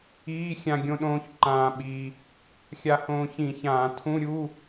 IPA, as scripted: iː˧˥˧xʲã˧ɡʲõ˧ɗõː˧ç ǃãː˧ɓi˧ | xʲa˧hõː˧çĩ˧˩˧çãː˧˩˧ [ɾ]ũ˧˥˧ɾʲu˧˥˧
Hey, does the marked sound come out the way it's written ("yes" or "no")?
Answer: no